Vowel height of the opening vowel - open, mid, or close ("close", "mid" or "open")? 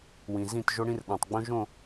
close